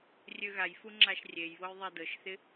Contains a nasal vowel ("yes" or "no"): no